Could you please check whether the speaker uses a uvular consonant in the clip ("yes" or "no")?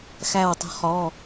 yes